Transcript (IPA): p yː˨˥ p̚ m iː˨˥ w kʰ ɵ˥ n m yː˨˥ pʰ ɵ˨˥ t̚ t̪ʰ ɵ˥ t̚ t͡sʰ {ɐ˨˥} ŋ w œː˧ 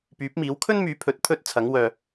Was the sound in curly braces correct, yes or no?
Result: yes